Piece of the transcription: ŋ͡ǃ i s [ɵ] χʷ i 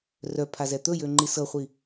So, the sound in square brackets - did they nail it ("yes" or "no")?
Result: no